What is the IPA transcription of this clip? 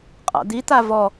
qʼ a̰ d̪ i t̪ a v ɔ

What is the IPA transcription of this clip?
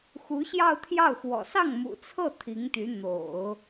x u˧˥ ɕ j ɑ˥˧ ʊ̯ t̪ʰ j ɑ˥˩ ʊ̯ x w ɔ̰˨˩ s ɑ˥˩ ŋ m ṵ˨˩ t͡sʰ ɤ˥˩ t̪ʰ i˧˥ ŋ t̪ y˧˥ n̪ o̰˨˩˦ ʊ̯

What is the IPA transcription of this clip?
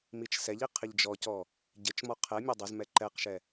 m i t͡ʃ s ɛ ʎ i qʰ ɪ ʎ d͡ʒ ɔ c ɔ | ɟ ɪ t͡ʃ m ɔ qʰ ɛ mʲ ɑ dˤ ɘ z m ɛ ǃ ɛ q ʃ ɛ

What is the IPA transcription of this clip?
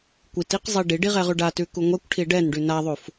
kʷ i t i q zˤ i ɖ i ɖ i ʁ ɛ ʁ ʉ ɖ a t ʉ k u ŋʷ ɛ kʷ ʈʰ i ɖ ɛ n ɖ ʉ n a ðˤ u f

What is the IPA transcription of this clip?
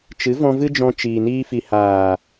t͡ʃ ɨ˨˦ v ɔ̃˧ v ɨ˦ d͡ʒ ɔ̃˧ t͡ʃ iː˨ n iː˧ f i˨ h aː˨

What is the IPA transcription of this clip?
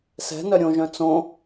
s ɛ̤ n œ ɾʲ õ ʒ œ̃ t͡s õ

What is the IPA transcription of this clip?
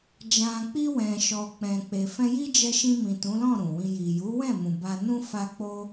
d͡ʒ ã˨ k͡p i˧ w ɛ̃˨ ʃ ɔ˨ k͡p ɛ̃˨ k͡p e˨ f ɛ̃˧ j i˦ d͡ʒ ɛ˧ ʃ ĩ˧ m ĩ˨ t ũ˨˦ l ɔ̃˦˨ ɾ ũ˨ w ĩ˧ j i˨ j u˨˦ w ɛ̃˦˨ m ũ˨ b a˧ n ũ˦ f a˦ k͡p o˦

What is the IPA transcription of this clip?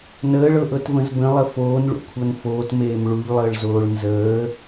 n əː ɭ ɤ ʔ ɤ t v ə̃ z b ə̃ lˠ ə f oː n ɭ ṵ kʷʰ ɤ n f oː t m eː m ɭ u ʎ lˠ əː ɭ z oː ɭ n z əː

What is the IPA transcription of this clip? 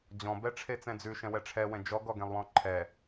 d͡ʑ ɔ̃ b ɛ ʈ͡ʂʰ e t͡s ɛ̃ d͡z ʉ ʃ ɛ̃ w ɛ ʈ͡ʂʰ ɛ w ɛ̃ d͡ʒ ɔ ɡ ɔ ɡ ẽ lˠ w ɔ̃ ǃʰ ɛ

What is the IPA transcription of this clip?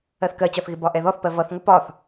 ɜ θ k ɜ t͡ɕ ɒ θ ɣ ɪ b ɒ ʔ ɛ ð ɔ θ p ɜ v ʌ θ ŋʷ ə p ɒ θ

